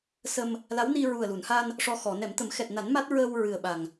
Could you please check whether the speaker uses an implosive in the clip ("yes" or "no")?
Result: yes